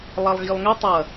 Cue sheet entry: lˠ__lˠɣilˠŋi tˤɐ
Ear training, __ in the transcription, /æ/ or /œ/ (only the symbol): æ